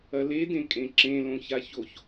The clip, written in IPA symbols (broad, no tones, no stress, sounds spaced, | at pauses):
ɐ l e d ẽ kʼ ẽ ǁ ẽ l õ ç a ç o ç